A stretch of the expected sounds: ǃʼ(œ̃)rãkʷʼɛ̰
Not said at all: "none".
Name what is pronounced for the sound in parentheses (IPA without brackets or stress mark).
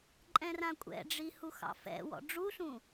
ɛ̃